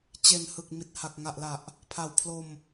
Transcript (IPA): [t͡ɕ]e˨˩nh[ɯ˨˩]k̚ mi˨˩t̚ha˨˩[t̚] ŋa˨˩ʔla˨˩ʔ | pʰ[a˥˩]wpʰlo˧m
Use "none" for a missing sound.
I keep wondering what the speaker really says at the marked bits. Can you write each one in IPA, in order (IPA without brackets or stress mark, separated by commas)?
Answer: t͡ɕ, ɯ˨˩, k̚, a˨˩